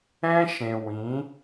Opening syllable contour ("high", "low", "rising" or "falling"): high